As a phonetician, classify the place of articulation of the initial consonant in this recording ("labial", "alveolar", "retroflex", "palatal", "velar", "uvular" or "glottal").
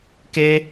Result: velar